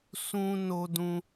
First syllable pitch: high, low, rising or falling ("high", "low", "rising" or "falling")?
high